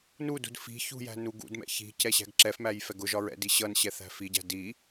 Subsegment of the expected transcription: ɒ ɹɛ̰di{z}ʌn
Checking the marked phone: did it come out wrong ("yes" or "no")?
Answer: yes